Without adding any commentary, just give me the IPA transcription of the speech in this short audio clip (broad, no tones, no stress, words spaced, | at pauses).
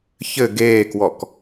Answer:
çɘ ɡeːkwɔk